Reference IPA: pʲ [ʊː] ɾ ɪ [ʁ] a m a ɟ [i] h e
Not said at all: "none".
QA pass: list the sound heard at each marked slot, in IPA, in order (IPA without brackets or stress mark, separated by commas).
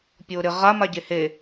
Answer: ʊː, ʁ, e